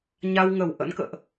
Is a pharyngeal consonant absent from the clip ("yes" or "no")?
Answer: yes